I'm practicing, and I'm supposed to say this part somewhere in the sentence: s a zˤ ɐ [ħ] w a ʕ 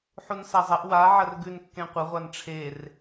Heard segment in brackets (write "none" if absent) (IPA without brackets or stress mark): ʔ